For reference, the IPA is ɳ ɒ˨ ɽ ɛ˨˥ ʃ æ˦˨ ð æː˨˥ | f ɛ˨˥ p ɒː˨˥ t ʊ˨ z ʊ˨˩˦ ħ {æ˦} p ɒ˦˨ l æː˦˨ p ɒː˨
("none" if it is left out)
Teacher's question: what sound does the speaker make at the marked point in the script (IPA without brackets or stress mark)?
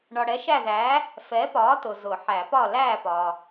æ˨˩˦